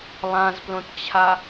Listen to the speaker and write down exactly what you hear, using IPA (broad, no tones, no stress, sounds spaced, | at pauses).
lˠ ã z p l õ t t͡ɕʰ a